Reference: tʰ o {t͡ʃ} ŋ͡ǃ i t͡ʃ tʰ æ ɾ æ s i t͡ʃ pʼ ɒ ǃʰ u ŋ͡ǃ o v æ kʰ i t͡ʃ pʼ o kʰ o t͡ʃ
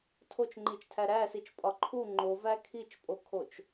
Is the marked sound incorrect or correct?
correct